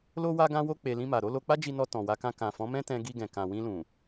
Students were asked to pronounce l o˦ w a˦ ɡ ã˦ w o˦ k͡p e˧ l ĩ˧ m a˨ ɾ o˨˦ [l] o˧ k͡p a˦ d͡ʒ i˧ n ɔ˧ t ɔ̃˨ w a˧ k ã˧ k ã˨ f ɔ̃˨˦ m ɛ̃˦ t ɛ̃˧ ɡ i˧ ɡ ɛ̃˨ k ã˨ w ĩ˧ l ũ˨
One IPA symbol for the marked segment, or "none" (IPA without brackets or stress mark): l